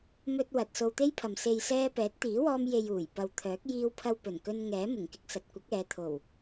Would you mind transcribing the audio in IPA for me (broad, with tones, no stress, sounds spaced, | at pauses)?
m ɵ˧ t̚ w ɐ˨ t̚ s o˧ w t̪ e˥ j pʰ ɐ˨ m s e˨ j s ɛː˧ p ɛː˨˥ t̚ t̪ iː˨˥ w ɔː˧ m j e˨ j uː˨˩ j p ɐ˨ w t̪ʰ œː˨˥ k̚ j iː˧ w pʰ ɐ˧ w p ɵ˨˩ n k ɵ˧ n ŋ ɛː˨˥ m ʊ˨˩ ŋ k ɪ˧ k̚ s ɐ˨ t̚ kʷ ɐ˨˥ k̚ ɛː˨˧ t̪ʰ o˨˩ w